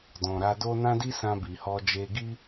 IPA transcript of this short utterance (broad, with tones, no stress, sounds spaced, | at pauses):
d ɔ̃˨ ɾ a˧ d o˦ n ã˦ d i˦ s ã˧ b i˨ h ɔ˧ d͡ʒ e˧ ɡ i˦